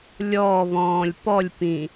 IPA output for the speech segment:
lʲ ɔː β ɔ̃ː lʲ p ɔ lʲ p ĩ

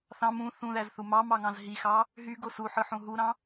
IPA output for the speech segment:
θ ɑ̃ m ũ θ ũ ð æ z θ u m ɑ m ɑ ŋ ɑ̃ z ɦ i x ɑ | ɦ y ɡ o s u ħ ɯ ħ ũ ɦ u ɾ ɑ̃

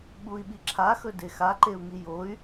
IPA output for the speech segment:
ɓ u i̯ ɓ i ǁʰ a x ɵ d e x a ǃ e u̯ ŋ i j o y̯

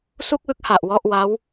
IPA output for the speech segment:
s u˥˩ k̚ w ɯ˥˩ k̚ h a˨˩ ʔ w ɔ˥˩ ʔ w a˦˥ w

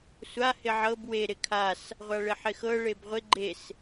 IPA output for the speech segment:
sʷ a h ɪ ʕ ɤ b w e ɾ ɪ kʰ a s | ʁʷ a ɭ ɪ ħ ɪ x ɤ ɭ e b ʁʷ ɪ ɡ͡ǃ e s

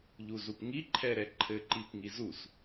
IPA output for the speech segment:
ʎ u z u p ŋ i ǃʰ ɛ ɾ ɛ ǃʰ ɘ ǃ i p ŋ i z u s

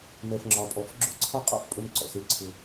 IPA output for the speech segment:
m ɛ˨ f ŋ͡ǁ ɒ˨ pʼ ɔ˨ f ɡ͡ǁ ʊ˦˨ ǀʰ ɒ˦ qʼ ɔ̰˦˨ f pʼ ɵ˦ m ǀ ɔ̰˨ s e˦ ǀʰ ʊ˦

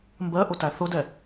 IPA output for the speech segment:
m b ɜ ʔ ʊ t æ θ ʊ d ɛ

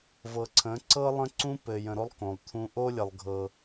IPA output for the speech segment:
v ɤ˨ ǀʰ ə̃˨˦ ǀ ɤ˦ lˠ ə̃˦ ǀ ũ˦ p ɘ˨ j ə̃˨ ɾ o˦ lˠ k õ˨ lˠ t̪ʰ ũ˨ ʔ o˦ lʲ ə˨ lˠ ɡʱ ɤ˦

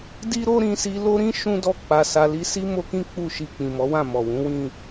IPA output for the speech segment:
d i˦ ɾ o˦ ɾ ĩ˧ s i˧ l o˦ ɾ ĩ˦ ʃ ũ˦ d ɔ˦˨ k͡p a˧ s a˧ l i˧ s i˦ m o˦ k ĩ˦ k͡p u˦˨ ʃ i˧ k͡p ĩ˨ m ɔ˨˦ w ã˦˨ m ɔ˨ w ũ˨˦ w ĩ˦˨

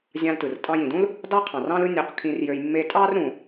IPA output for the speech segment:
zʲ ɑ̃˧ l t ɯ˩ r tʼ ɑ̃˧ j ĩ˩ d ũ˥ l | d ɑ˥ qʰ ɑ̃˩ r ɑ̃˥ l ɯ˥ nʲ o˧ q kʰ ĩ˧ r j ø˧ j mː e˧ tʼ ɑ˥ r ɾ ũ˩

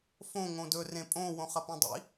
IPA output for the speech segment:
f õ ŋ õ d ɵ r ẽ pʼ õ w õ χ ɐ p ẽ dˤ ḭ

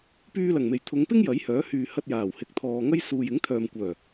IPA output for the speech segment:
p yː˧ l ɐ˨˩ ŋ m e˨˩ j t̪ʰ ʊ˨˧ ŋ p ɪ˥ ŋ j ɐ˨˥ j h œː˨˥ h yː˨ h ɐ˧ t̚ j aː˨˩ w h ɪ˨ k̚ t̪ʰ ɔː˨ ŋ ɐ˥ j s uː˨ j ɪ˨˥ ŋ t̪ʰ œː˨ m kʷ œː˨˩

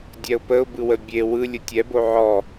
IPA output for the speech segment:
dʲ ɛ ʊ̯ p ə ʊ̯ b ɯ w ə bʲ e w ɯ lʲ ɯ tʲ ɛ b o ʕ ɔ

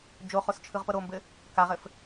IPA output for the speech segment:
d͡ʒ o χ o s t͡ʃʰ ɯ ʁ p ɤ ɾ o m b ɘ | k a ʁ ɘ f

